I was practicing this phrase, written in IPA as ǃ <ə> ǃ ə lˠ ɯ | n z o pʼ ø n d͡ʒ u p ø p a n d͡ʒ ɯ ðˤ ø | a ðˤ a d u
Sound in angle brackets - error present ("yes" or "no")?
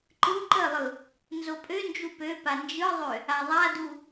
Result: yes